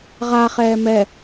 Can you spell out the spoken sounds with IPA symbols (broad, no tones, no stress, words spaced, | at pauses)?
ʁaχɛː mɛ